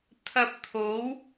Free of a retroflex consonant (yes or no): yes